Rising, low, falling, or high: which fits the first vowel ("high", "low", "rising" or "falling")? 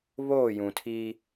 falling